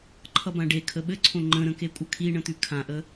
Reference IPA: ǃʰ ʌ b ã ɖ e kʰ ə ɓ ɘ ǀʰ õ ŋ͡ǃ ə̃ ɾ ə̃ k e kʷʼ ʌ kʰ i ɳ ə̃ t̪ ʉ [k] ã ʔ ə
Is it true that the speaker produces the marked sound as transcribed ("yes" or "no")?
no